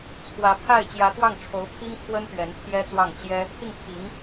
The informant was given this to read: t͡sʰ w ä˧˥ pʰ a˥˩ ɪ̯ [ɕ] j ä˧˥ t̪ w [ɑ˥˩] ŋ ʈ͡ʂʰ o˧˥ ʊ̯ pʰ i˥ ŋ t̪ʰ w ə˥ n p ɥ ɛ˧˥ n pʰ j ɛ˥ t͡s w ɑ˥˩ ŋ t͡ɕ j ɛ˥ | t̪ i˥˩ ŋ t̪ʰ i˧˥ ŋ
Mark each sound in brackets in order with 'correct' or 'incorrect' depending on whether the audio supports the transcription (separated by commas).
incorrect, correct